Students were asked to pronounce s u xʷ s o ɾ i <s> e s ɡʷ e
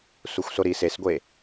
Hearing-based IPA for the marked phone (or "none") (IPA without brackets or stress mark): s